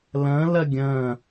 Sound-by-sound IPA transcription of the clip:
l ɐ̃ l ɐ ɡʲ ɐ̃

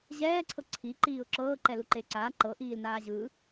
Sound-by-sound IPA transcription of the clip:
ʑ ɛː ǀʰ ɤ ǀʰ i ǃ iː ʊ̯ ǁ ɤː ǃ ɛ l u ǃ e ǀ aː ǃ ɤ ʔ iː l n aː ʑ ɯ

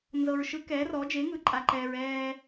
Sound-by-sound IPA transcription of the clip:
n z ɤ˨ ɹ ʃ ɯ˨˥ k ɛː˨˥ r ɔ˨˥ d͡ʒ e˨˥ ŋ ɯ˨˥ ǃʼ a˨ ǃ ɛː˨ ɹ ɛː˨

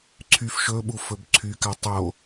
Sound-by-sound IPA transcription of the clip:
ǀʰ y f ʃ ɵ ɓ u f ɵ b ǀʰ y k a tˤ o

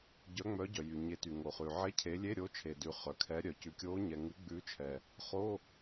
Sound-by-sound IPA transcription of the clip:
ɟ œ˨˦ ŋ͡m œ˨˦ ɟ œ˩ j y˩ ɲ e˨˦ t y˩ ŋ o˩ χ ʉ˩ ʕ e˧˥˧ cʰ e˨˦ lʲ e˧˥˧ ɾʲ o˨˦ t͡ʃʰ e˩ d ʉ˩ χ œ˩ kʰ ɛ˨˦ ɾʲ œ˩ c ʉ˩ kʲ o˨˦ ɲ ɛ˩ ŋ ʉ˨˦ ɡ͡b ʉ˨˦ t͡ʃʰ ɛ˩ | χ o˧˥˧

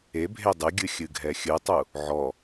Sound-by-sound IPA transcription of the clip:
e bʱ e dˤ ɨ ɡʲ ɨ xʲ ɨ ɡʱ ɛ xʲ ɨ tˤ u | ʕ ɔ

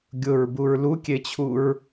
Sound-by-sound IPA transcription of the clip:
ɡʲ ʊ ɹ b u ɹ l u kʲ e t͡ɕʰ u ɹ

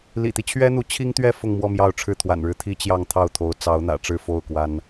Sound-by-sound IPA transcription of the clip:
l ḭ˨˩ t̪ i˦ t͡ɕʰ ɥ ɛ˥ n̪ u˧˥ t͡ɕʰ i˥ ŋ t̪ ɥ ɛ˥˧ f ʊ˥˧ ŋ m w ɔ˥˧ m j ɑ˥˧ ʊ̯ ʈ͡ʂʰ ɻ̩˥˩ t̪ʰ w a̰˨˩ n ɻ ɻ̩˥˩ t̪ʰ i˥ t͡ɕ j ɑ˥˧ ŋ t̪ʰ ɑ˥˩ ʊ̯ t̪ʰ o˧˥ ʊ̯ t͡s ɑ˧˥ ʊ̯ n̪ ä̰˨˩ ʈ͡ʂ ɻ̩˥˧ f o˥˩ ʊ̯ k w a˥ n

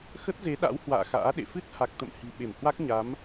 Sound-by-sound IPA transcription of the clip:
x ə˦˥ t̚ z e˨˦ ɗ a̰˧˥ w h w a̰ː˧˨ x a̰ː˧˥ ɗ ḛ˧˨ f ɨ˦˥ t̚ h a˨˩ k̚ t̪ ə̰˧˨ m h i̤˨˩ ɓ e˧˩ m h w a˦˥ k̚ ɲ a˨˦ m

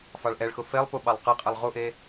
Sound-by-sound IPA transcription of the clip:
f ɑ ɭ ʔ ɛ ɭ x ʊ f e lˠ p u ɓ ɑ lˠ q ɤ qʼ ɛ lˠ ʁ u ʔ e

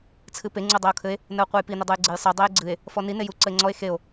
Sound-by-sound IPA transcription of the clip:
t͡sʰ ɨ p e ŋ͡ǀ u dˤ e o̯ kʰ ɘ e̯ | n ə o̯ qʷ e j p i n ə dˤ ɯ j ɡ͡ǀ e j sˤ ɯ dˤ e j ɡ͡ǀ ɨ e̯ | f ɔ n i n e j u ǀ ə e̯ ŋ͡ǀ ɔ e̯ x e o̯

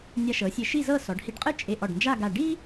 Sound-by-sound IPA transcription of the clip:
nʲ a˧ ʃ ɤ˩˧ sʲ e˧ ʃ i˥˧ z ɤ˥˧ s ɔ˩˧ ɖ h i˧ ɖ qʼ ɯ˥˧ t͡ʃʼ e˧ ʔ ɔ˧˩ ɖ n d͡ʒ a˥˧ ɡ a˧˩ ɖ i˥

